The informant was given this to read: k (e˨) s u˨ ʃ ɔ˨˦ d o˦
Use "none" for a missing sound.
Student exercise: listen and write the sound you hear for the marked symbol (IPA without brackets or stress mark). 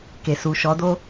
e˨